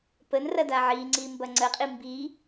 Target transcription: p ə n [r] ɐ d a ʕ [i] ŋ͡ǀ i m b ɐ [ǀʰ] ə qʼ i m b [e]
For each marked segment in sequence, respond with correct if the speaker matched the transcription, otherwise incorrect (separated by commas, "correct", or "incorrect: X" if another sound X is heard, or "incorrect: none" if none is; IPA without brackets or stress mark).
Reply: correct, correct, incorrect: ŋ͡ǀ, incorrect: i